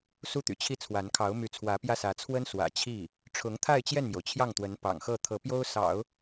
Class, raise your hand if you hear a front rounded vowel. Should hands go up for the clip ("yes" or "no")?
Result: yes